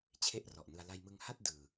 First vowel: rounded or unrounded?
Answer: unrounded